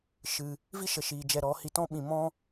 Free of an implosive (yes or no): no